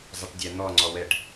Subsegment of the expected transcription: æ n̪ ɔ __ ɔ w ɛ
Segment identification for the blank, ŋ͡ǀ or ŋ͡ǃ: ŋ͡ǀ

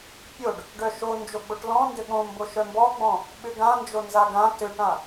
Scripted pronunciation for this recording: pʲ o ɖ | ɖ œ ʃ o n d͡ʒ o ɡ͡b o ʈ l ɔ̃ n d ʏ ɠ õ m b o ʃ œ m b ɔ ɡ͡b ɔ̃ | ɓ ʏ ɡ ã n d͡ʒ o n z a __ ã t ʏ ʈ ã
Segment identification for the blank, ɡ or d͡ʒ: ɡ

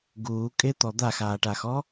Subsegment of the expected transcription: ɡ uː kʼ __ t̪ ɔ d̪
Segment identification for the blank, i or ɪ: ɪ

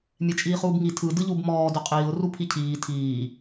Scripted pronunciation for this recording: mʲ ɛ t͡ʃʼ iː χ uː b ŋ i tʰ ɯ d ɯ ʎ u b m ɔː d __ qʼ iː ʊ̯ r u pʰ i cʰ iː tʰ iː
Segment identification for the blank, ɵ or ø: ɵ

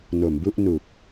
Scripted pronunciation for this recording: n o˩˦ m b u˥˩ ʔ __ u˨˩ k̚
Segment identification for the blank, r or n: n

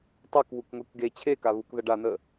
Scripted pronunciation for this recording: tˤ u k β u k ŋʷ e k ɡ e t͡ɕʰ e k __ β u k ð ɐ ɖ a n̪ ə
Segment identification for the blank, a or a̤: a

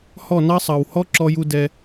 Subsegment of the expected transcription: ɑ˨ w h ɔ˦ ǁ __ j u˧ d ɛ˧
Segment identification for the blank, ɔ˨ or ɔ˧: ɔ˧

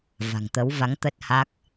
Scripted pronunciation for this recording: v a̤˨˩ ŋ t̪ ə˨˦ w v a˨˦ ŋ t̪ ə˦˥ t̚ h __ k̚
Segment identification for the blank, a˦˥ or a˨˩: a˦˥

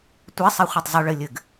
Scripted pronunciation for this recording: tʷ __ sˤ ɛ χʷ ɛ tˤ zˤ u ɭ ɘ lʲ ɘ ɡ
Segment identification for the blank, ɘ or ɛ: ɛ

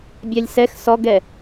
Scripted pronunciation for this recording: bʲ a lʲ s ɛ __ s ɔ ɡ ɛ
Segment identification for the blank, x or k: x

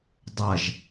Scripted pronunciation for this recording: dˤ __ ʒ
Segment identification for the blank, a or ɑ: a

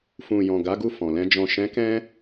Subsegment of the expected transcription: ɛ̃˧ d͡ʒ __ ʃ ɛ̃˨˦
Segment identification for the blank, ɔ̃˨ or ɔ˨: ɔ̃˨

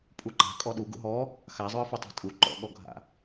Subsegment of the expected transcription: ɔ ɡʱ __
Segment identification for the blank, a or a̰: a̰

